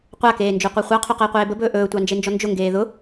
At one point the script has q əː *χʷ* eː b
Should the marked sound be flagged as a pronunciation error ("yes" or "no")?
yes